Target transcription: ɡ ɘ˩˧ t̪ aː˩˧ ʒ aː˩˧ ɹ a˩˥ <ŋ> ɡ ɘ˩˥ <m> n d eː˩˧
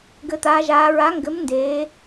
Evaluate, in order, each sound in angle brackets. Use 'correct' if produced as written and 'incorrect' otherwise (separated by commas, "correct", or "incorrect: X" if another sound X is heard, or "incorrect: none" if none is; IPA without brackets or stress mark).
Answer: correct, correct